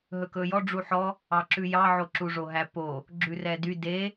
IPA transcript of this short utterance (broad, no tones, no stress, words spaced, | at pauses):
ɦɵkɵjɔ ɖ͡ʐuħɔ | ɑǁʉjɑ ʕoǁuʐoɦæ po | ɡ͡ǁʉrɛdy de